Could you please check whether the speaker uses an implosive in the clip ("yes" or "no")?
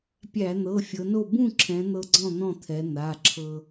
no